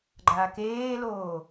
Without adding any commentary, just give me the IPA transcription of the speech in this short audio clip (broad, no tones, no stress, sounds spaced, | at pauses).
ɡ͡ǃ a k eː l oː